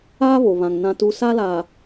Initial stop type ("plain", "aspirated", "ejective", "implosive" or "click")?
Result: plain